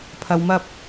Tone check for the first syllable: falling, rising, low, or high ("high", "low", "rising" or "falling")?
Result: low